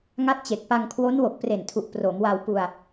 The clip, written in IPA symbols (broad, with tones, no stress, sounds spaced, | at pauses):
ŋ a˦˥ t̚ t͡ɕ e˨˩ k̚ p a˧ ŋ kʰ w o˦˥ n w o˨˩ k̚ p r e˨˩ n tʰ u˨˩ ʔ p r o˩˦ m w a˧ w p u˧ a̯